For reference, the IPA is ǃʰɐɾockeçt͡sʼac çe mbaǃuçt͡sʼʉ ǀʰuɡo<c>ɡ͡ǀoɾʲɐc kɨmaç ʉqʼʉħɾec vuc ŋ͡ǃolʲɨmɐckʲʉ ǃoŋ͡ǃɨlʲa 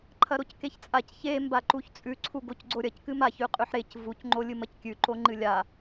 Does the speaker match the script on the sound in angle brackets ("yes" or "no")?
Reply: yes